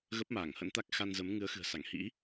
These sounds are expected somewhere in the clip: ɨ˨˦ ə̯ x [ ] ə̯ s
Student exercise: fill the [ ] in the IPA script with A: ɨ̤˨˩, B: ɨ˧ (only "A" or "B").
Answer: A